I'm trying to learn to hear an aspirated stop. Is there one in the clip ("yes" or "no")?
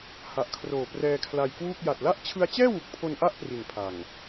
yes